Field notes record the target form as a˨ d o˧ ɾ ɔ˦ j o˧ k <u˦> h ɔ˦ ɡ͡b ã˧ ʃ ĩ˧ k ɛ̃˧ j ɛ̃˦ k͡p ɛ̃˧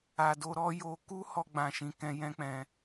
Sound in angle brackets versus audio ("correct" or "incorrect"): correct